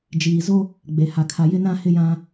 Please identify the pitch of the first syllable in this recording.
low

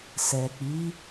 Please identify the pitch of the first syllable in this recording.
low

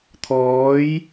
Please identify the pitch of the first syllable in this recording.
rising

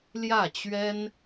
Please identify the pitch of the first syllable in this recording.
falling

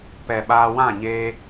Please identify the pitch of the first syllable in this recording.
low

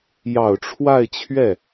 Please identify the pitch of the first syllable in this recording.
low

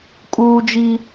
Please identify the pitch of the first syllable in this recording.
high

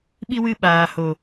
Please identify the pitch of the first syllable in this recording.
high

